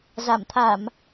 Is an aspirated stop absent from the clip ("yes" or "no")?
no